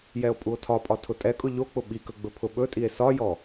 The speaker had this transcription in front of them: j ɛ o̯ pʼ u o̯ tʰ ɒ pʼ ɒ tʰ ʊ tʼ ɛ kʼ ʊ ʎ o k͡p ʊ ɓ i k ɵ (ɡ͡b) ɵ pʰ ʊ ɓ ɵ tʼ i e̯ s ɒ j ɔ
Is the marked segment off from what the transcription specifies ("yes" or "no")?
no